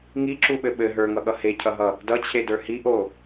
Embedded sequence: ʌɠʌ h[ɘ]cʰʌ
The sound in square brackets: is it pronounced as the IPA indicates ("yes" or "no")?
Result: no